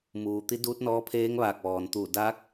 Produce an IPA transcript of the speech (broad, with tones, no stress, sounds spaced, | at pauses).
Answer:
m uː˩ t̪ i˧˥ d uː˧˥ t̚ n ɔː˧˥ pʰ eː˧˥ ŋ ʋ aː˧˩ k̚ ʋ ɔː˩ n t̪ uː˧˩ d aː˧˥ k̚